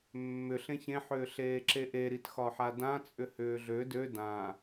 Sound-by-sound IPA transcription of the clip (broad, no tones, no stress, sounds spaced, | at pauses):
mː ʏ ɬ ẽ ç ẽ ħ ʏː ɬ eː ǁ e ʔ e ɾ i t x ɒ ħ a d ã t͡sʼ ʏ h ʏː ɮ ø d ø d ã